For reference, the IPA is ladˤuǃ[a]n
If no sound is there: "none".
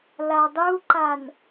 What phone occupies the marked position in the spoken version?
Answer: a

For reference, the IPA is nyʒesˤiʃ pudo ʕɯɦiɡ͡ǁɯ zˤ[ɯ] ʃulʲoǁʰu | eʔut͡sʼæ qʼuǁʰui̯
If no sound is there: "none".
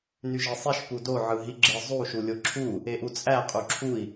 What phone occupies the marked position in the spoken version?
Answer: u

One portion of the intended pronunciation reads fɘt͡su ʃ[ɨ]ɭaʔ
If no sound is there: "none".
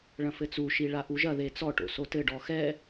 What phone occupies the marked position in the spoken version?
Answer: i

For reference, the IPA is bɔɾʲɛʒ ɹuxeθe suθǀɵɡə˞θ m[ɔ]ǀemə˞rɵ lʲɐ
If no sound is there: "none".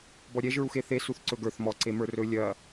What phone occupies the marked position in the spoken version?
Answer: ɔ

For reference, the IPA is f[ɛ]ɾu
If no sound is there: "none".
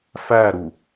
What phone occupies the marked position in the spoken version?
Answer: æ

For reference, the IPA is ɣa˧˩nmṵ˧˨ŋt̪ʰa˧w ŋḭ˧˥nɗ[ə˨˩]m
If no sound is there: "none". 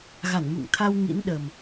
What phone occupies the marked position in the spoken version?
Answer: ə˨˩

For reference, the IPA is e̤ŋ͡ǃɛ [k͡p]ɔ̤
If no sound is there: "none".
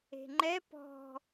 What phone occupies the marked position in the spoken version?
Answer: p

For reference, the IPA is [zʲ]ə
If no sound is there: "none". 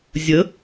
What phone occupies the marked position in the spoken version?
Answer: zʲ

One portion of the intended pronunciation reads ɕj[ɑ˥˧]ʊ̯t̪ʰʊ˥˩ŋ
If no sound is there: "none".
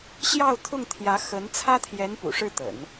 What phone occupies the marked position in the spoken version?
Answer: ɑ˥˧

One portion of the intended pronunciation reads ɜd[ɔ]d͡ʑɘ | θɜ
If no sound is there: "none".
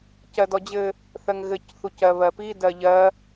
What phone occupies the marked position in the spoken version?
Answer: ɔ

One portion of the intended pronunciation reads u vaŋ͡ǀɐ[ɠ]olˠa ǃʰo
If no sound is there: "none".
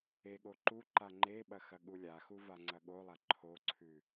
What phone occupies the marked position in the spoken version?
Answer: ɠ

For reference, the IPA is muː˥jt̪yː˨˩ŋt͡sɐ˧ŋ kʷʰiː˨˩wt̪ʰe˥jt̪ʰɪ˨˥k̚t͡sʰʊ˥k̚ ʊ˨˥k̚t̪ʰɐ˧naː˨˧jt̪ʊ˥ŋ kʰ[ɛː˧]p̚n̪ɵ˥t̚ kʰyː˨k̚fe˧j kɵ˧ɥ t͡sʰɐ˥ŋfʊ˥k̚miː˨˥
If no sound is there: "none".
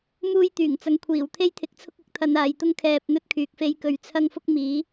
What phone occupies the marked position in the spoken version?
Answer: ɛː˧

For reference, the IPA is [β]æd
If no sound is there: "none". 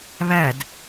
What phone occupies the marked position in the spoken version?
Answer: β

